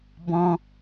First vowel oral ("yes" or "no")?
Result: no